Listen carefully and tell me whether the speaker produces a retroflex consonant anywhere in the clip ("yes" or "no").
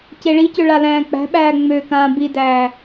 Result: yes